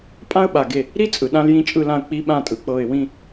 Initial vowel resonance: nasal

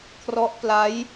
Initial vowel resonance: oral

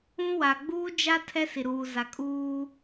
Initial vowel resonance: nasal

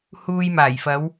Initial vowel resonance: oral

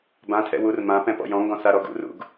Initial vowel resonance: nasal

